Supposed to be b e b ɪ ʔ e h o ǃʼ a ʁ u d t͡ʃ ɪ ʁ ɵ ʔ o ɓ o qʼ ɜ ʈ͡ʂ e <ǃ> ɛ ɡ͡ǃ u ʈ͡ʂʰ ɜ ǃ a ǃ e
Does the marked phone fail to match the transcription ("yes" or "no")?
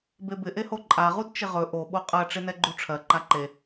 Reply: yes